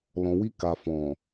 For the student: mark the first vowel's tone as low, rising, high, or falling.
low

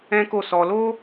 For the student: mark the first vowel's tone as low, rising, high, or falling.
high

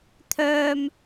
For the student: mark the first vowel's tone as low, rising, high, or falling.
high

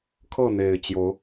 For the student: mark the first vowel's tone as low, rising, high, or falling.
falling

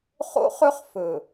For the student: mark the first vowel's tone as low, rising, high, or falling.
high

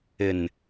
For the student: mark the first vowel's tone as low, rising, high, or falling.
low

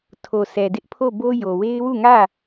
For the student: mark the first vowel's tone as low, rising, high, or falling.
low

